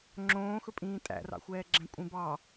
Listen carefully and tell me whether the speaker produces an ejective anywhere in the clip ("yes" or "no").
yes